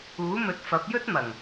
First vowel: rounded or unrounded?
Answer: rounded